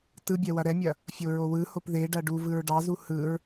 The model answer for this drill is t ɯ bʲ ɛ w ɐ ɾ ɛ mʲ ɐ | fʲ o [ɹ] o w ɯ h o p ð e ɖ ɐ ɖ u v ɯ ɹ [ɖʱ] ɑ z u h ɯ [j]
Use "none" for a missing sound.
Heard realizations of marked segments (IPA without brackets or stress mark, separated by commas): ɹ, ɖ, ɹ